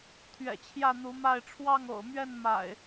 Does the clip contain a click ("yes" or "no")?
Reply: no